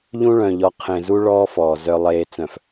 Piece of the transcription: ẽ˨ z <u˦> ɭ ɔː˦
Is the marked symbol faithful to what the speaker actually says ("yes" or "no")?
yes